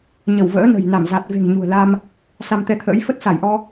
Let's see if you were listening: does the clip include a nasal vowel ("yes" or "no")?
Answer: no